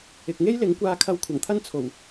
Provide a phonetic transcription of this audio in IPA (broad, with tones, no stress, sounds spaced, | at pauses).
ɪ˨ k̚ ŋ e˥ j l ɪ˨˥ ŋ kʷ aː˧ kʰ ɐ˧ w kʷʰ ɐ˨˩ ŋ t̪ʰ ɐ˥ n t͡sʰ o˨˩ w